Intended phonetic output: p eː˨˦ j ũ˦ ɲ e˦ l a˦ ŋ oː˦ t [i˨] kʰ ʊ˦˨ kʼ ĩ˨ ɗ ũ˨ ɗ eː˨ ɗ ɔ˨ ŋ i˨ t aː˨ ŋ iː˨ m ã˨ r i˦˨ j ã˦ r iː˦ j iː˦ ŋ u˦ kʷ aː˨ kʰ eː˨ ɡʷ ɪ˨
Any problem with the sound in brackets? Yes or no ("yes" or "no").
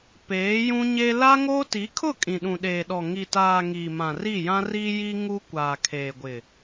yes